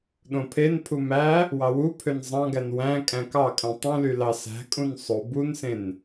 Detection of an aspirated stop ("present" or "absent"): present